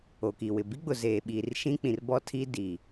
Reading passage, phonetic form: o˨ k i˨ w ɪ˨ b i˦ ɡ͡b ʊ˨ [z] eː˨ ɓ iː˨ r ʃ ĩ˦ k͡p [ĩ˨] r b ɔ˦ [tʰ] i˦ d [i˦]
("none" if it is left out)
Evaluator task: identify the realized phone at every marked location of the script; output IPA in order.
z, ĩ˨, tʰ, i˨

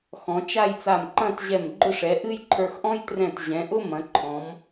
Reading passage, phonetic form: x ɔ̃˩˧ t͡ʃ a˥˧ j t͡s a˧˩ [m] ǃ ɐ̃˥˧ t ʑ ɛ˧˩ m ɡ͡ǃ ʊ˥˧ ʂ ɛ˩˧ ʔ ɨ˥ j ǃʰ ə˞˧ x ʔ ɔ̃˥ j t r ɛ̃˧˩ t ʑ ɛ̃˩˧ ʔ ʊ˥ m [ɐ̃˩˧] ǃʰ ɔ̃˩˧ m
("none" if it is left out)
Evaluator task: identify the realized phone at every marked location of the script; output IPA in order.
m, ɐ̃˩˧

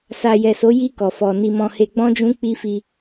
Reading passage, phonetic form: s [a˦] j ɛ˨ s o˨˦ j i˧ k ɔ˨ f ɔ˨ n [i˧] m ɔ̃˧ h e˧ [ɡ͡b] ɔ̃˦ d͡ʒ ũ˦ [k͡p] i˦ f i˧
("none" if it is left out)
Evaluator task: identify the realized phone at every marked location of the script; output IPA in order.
a˨, i˧, ɡ͡b, k͡p

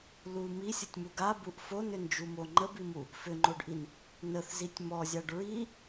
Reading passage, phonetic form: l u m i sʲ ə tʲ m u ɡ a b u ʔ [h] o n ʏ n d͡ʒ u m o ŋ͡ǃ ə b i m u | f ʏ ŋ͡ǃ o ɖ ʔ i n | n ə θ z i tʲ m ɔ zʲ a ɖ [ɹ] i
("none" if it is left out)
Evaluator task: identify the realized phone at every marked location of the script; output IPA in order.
f, ɹ

